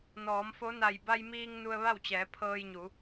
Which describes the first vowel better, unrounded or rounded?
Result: rounded